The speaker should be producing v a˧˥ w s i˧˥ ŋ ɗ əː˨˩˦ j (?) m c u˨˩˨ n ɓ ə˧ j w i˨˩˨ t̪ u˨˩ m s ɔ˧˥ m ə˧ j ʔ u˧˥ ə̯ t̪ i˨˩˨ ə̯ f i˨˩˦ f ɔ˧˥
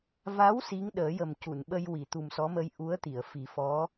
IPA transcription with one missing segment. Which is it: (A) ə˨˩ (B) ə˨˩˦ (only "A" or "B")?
A